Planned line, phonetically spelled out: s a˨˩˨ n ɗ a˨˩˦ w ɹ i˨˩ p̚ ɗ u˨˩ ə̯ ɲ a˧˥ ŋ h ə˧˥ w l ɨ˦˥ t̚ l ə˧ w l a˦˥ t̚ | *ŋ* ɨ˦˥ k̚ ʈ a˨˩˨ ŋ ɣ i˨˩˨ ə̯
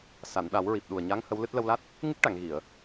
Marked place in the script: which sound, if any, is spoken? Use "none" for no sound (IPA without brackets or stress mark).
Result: ŋ